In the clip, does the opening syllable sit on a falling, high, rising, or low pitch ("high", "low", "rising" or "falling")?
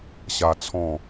high